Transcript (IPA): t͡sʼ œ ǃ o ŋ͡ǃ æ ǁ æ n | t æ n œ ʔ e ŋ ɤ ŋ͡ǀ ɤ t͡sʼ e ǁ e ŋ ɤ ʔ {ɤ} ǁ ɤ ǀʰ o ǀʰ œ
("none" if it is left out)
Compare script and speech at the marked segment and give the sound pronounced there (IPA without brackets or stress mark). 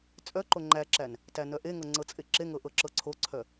ɤ